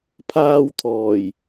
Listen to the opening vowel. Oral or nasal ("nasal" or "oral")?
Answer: oral